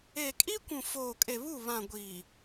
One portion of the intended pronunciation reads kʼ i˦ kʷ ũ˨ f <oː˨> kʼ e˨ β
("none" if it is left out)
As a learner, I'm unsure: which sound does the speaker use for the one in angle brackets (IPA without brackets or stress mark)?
oː˨